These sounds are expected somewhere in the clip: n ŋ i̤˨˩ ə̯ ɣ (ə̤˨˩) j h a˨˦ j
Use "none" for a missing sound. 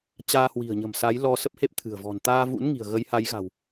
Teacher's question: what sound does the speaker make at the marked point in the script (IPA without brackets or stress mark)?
ə˨˦